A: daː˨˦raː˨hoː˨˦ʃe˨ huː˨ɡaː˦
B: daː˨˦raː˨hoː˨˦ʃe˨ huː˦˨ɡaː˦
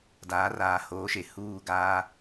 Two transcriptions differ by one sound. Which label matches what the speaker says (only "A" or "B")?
B